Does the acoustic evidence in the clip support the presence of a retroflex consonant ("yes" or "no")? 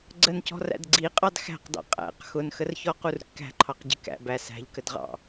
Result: no